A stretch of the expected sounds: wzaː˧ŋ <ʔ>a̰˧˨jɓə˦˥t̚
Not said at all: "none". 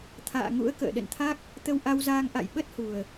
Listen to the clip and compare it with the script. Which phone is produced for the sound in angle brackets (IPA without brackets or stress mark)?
ʔ